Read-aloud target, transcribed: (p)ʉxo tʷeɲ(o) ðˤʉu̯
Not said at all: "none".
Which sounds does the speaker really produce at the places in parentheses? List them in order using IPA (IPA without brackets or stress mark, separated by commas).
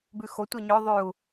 b, ɵ